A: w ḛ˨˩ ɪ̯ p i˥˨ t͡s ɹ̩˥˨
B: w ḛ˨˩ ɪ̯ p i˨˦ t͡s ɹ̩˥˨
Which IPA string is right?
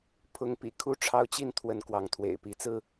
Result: B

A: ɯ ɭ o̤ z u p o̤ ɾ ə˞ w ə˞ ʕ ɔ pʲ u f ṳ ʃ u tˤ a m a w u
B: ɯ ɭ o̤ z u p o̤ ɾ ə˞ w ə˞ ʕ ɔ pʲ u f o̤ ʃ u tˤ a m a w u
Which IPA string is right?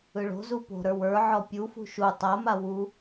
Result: A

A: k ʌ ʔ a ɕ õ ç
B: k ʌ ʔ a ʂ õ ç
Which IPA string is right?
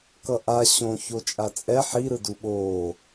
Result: A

